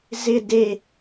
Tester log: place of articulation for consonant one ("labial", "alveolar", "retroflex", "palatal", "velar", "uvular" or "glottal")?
alveolar